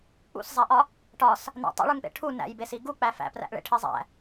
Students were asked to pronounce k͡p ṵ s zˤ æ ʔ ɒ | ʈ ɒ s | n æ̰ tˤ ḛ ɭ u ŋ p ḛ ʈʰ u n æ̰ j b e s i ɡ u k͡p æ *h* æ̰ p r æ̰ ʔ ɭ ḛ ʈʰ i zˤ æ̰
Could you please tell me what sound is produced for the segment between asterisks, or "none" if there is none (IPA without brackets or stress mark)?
f